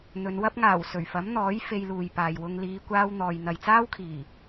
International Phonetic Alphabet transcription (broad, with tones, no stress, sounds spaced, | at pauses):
n̪ ɵ˨˧ n w ɐ˧ p̚ ŋ aː˨˩ w s ɵ˨˩ ɥ f ɐ˨˥ m n̪ ɔː˨˥ j f e˧ j l uː˨ j p aː˨ j w ʊ˧ ŋ l iː˨˧ kʷ aː˧ w n̪ ɔː˨ j n̪ ɐ˨ j t͡s aː˥ w kʰ iː˨˩